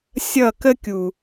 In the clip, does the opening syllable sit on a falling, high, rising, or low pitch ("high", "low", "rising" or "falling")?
falling